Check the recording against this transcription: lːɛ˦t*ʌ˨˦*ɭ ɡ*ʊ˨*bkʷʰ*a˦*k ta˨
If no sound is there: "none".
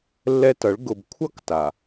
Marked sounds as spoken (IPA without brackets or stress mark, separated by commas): ʌ˨˦, ʊ˨, ʌ˦